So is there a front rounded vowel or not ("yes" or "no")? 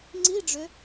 yes